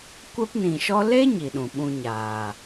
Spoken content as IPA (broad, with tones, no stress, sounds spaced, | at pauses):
kʷ ɛ˦ p n ĩ˨ ʃ ɔ˦ l e˦ ɲ i˨ ɗ ũ˨ ɓ ũ˧ ɲ aː˨